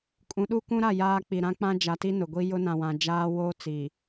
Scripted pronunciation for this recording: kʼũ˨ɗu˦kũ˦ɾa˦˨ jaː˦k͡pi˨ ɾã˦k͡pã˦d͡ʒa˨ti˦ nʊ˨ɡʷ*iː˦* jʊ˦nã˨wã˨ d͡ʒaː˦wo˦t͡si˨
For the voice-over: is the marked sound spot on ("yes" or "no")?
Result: no